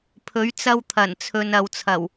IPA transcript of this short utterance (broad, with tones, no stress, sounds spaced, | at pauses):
pʰ ɵ˨˥ ɥ t͡s ɐ˧ w t̪ʰ ɐ˨˩ n t͡sʰ ɵ˨ n ɐ˨ w t͡sʰ ɐ˨˩ w